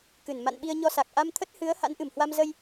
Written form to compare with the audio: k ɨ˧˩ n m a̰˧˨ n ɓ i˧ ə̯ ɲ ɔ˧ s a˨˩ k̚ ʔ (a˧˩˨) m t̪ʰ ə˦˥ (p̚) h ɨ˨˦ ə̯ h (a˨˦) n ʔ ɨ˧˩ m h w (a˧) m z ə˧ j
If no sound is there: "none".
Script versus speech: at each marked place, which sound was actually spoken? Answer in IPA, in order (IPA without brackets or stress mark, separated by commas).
a˧, t̚, a̰˧˥, a˧